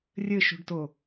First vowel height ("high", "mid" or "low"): mid